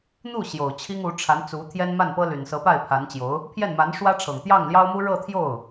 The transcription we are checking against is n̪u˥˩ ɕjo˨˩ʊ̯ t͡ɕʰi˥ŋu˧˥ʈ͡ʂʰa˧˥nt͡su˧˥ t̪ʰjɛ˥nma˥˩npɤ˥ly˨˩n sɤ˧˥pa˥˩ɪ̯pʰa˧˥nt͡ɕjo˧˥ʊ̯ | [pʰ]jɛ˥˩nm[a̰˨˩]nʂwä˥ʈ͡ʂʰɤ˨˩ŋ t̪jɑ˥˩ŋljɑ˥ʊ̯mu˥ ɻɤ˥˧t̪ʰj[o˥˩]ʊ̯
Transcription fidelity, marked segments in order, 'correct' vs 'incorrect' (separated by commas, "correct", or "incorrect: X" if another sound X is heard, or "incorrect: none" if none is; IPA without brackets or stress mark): correct, incorrect: a˧˥, correct